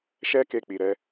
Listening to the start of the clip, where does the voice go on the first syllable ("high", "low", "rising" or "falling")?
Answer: high